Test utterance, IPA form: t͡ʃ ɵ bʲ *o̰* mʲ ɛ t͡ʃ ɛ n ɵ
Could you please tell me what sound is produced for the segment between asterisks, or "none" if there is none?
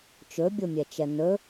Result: o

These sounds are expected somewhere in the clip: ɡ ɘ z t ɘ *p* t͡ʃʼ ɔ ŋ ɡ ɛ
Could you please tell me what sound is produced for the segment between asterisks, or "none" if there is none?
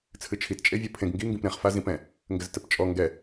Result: p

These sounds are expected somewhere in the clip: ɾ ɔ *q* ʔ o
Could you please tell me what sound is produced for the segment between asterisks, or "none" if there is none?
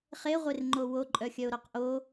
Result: q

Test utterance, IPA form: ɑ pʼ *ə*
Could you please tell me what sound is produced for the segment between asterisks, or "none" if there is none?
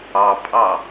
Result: ɑ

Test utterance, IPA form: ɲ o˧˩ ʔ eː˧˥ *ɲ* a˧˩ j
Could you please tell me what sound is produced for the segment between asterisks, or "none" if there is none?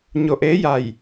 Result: j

